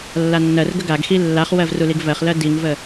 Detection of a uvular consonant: present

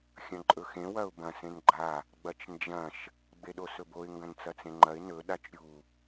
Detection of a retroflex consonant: absent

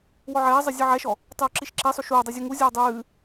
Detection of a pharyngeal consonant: present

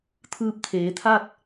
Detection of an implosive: absent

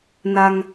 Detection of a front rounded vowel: absent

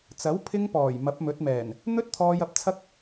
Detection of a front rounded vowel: absent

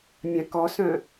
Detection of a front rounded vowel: present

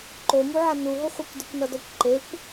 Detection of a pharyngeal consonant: present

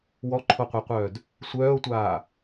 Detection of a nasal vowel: absent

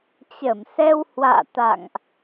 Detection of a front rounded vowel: absent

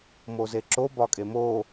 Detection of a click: present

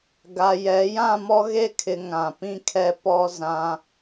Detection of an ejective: absent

